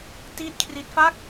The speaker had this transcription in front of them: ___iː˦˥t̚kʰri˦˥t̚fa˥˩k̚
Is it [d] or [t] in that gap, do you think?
t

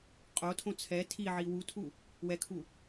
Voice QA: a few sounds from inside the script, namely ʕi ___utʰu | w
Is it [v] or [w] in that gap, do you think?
w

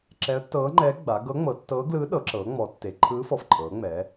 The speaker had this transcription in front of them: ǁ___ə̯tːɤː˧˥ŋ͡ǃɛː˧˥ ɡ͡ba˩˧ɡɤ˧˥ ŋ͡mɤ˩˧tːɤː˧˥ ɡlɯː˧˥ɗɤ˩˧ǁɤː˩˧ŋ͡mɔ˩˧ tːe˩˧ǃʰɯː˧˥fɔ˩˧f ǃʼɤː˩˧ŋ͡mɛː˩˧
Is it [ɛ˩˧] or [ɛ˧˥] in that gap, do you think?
ɛ˧˥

